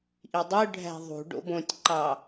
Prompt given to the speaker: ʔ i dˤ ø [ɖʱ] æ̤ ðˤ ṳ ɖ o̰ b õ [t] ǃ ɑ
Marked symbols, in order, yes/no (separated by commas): yes, no